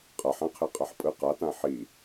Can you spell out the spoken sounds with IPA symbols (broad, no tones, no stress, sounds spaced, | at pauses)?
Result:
qʼ a ħ ã qʰ e qʼ a ħ pʼ ɯ q a t ã ħ i